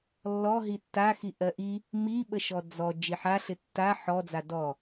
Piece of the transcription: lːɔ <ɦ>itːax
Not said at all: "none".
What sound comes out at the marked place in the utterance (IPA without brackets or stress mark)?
ɦ